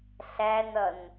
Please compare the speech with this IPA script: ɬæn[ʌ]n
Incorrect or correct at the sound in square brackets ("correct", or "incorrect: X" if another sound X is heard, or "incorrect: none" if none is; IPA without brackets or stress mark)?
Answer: correct